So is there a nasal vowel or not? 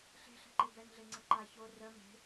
no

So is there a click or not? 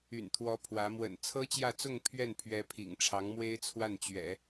no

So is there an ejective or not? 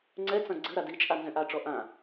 yes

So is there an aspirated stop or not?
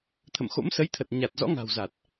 yes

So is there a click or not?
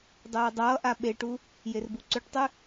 yes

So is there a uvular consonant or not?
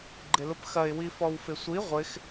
yes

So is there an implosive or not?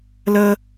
no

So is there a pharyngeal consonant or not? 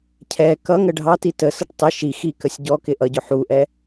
yes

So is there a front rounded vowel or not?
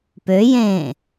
yes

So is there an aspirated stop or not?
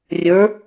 no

